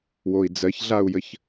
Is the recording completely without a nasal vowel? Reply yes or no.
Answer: yes